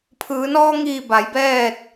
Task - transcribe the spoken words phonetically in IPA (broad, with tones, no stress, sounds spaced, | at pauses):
pʰ ɯː˩˧ n ɔː˧ ŋ iː˧˩ b a˩˧ j b ɛː˥˨ t̚